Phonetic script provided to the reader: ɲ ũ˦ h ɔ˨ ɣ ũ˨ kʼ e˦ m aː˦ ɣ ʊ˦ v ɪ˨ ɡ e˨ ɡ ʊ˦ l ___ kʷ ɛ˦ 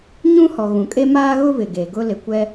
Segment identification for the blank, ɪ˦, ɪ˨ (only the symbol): ɪ˨